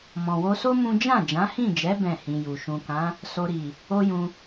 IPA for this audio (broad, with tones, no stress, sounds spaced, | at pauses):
m ɔ̃˨ w o˧ s o˦ m ũ˦ d͡ʒ ã˦˨ d͡ʒ ã˨˦ h ĩ˦˨ d͡ʒ ɛ˨˦ b ɛ̃˦˨ h ĩ˧ j u˨ ʃ ũ˨ k ã˨˦ | s o˧ ɾ i˨ | o˦ j ũ˧